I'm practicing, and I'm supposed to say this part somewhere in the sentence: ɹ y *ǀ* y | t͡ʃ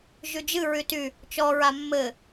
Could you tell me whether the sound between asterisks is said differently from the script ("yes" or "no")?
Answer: yes